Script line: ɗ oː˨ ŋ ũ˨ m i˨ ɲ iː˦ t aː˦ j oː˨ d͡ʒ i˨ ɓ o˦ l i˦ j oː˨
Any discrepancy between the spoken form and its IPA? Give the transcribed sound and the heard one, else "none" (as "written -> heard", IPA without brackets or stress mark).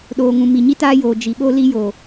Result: iː˦ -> i˦